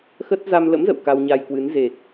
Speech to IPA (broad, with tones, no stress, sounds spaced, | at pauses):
x ə˦˥ t̚ z a˧ m l ə̰˧˥ m z ə̰˧˨ w k a˧ w ɲ a˧ j k w ɨ˨˦ n z e˨˩ k̚